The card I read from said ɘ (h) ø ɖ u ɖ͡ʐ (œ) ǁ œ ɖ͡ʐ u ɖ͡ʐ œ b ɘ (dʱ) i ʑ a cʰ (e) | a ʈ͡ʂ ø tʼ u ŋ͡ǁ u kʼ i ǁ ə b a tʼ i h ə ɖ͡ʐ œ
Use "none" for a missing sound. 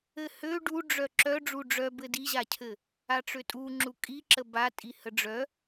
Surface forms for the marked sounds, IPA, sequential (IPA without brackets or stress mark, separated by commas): h, œ, d, ɘ